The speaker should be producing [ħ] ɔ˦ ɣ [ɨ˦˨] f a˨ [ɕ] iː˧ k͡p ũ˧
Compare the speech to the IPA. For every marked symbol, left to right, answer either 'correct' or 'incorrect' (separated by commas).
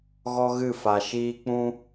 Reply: incorrect, correct, incorrect